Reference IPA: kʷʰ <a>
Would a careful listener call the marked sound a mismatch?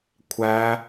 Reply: yes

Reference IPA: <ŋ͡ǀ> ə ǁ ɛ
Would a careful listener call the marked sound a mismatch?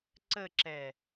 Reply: yes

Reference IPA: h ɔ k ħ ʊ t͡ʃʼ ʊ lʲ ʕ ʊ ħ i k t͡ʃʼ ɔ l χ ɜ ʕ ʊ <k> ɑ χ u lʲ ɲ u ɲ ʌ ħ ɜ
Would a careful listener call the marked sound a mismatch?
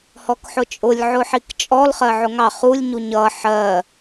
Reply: yes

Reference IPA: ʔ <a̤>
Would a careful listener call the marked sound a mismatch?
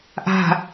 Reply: no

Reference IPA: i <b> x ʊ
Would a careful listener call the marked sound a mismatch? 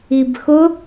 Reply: no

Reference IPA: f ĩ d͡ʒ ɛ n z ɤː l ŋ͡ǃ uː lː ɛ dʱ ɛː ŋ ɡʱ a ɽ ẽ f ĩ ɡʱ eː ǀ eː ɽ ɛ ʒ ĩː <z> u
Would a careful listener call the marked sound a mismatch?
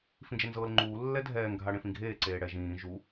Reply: yes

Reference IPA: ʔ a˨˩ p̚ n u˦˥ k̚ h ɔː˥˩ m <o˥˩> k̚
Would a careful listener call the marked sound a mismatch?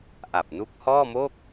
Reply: no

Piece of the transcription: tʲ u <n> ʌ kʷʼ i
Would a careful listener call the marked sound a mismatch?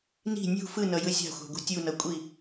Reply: no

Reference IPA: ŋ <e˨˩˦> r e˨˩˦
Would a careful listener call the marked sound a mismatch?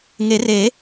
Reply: no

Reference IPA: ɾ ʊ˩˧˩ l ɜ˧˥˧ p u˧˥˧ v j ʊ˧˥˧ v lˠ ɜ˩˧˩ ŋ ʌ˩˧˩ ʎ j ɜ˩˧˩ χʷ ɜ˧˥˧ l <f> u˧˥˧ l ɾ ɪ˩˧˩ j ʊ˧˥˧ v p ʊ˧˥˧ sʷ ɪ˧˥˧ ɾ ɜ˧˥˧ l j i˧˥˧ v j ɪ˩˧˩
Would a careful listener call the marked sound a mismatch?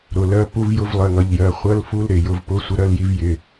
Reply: no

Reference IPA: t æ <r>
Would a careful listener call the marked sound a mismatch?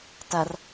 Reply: no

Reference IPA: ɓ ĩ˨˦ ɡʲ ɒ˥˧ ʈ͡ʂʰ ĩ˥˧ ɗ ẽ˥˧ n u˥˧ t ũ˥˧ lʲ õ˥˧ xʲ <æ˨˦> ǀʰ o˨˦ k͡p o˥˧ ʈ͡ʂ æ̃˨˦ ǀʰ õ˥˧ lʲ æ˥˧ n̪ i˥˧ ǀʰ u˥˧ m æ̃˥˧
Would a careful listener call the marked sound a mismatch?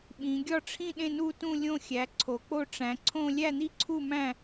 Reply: no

